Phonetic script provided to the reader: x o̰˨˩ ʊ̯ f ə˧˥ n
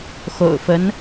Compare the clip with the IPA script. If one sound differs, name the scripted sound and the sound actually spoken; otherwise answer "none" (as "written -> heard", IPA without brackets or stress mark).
none